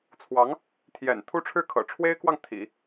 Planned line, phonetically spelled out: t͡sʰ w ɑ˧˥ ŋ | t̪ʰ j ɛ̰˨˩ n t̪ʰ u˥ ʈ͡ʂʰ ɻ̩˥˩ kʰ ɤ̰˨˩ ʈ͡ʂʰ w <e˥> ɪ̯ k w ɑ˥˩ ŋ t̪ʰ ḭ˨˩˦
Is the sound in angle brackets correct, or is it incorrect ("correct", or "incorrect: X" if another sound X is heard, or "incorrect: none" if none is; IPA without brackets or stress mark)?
correct